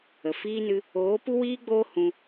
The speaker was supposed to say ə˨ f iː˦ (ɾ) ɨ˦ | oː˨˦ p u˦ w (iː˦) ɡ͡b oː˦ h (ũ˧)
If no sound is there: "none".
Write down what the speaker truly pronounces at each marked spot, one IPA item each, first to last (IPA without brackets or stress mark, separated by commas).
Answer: n, iː˦, ũ˧